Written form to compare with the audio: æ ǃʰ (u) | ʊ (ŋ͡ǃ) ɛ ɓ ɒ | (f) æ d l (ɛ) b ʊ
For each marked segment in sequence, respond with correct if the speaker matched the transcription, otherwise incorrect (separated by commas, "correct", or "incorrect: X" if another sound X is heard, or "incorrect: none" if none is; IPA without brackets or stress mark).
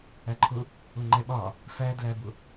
incorrect: ʊ, correct, correct, incorrect: æ